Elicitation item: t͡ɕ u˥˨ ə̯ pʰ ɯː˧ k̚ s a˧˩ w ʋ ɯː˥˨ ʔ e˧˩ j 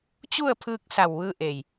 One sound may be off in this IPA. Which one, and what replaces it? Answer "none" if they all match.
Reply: none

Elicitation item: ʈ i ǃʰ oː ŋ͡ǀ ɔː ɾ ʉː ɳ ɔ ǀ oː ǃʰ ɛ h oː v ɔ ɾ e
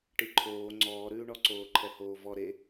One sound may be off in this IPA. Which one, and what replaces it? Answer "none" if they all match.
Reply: none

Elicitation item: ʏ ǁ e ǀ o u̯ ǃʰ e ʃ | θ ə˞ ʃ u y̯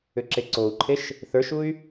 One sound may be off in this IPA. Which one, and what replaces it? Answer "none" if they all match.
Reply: none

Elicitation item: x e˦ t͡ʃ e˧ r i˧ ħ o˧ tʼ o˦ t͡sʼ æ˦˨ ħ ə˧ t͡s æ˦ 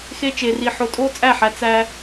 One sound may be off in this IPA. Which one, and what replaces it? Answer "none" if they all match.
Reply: ə˧ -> æ˧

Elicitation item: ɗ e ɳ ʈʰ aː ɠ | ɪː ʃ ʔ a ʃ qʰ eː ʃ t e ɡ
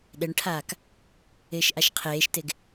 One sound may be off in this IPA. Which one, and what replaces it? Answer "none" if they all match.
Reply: ɠ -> k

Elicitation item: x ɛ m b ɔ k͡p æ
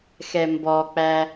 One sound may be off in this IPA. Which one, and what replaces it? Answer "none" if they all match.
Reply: none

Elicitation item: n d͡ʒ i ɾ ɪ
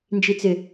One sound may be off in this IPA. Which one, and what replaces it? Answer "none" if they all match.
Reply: ɾ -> t͡s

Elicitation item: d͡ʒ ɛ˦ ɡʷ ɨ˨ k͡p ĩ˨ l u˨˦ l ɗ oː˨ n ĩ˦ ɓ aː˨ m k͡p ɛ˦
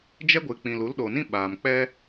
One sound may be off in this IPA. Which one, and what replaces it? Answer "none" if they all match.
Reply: none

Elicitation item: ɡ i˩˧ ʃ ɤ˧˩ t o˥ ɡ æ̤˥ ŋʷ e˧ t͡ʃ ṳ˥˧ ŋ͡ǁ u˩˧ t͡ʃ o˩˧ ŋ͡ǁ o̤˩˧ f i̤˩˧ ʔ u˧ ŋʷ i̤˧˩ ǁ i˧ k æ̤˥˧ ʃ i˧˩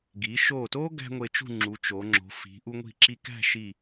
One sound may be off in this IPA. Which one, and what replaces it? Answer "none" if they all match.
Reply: ɤ˧˩ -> o˧˩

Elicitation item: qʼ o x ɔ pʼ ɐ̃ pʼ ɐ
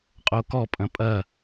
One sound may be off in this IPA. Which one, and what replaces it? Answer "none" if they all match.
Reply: x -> k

